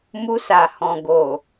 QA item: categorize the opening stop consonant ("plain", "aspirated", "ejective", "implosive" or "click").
plain